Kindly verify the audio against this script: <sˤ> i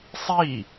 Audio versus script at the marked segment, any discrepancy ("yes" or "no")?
no